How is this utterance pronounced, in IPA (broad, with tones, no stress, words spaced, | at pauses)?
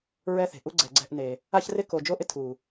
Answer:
ɹɛ˦θe̤˨ ʔu˦ ɡ͡ǀɛ˨ɡ͡ǀɛ̤˦˨ʔne˨ | a˦çrɪ˦ ko˨ d͡ʒo˦ʔɪ˦ tʰu˨